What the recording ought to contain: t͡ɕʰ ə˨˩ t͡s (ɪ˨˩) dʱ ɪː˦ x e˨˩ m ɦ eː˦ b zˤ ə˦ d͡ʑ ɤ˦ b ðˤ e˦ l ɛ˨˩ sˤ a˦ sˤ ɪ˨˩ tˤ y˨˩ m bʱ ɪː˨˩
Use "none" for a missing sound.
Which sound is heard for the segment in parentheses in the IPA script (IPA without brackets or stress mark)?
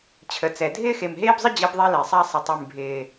ɛ˨˩